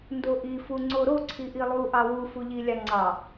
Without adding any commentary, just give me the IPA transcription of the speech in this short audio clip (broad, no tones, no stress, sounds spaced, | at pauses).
n d o ʔ i f u ŋ͡ǀ o ɾ o ǀʰ i ʔ i lˠ u ʔ ɑ w u f u ʎ i lʲ ɑ ŋ͡ǀ ɑ